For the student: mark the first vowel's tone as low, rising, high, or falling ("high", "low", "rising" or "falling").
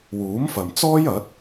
rising